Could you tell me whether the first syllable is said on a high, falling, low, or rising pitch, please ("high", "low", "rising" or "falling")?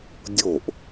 falling